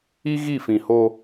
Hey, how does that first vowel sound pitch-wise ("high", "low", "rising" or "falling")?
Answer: high